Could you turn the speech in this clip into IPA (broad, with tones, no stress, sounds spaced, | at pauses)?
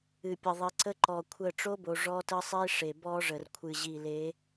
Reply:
ɨ˨ pʲ ə˨ ðˤ i˨ ǀ ə˦ ǃ ɔ˨ kʷʰ ə˦˨ ʈ͡ʂ o˦ b o˨ ʐ ɔ˦ t ə˦ sˤ i˦ ʂ e˨ b ɔ˦ ʐ ə˨ r kʷʰ ɨ˨ ʑ i˨ l e˨˦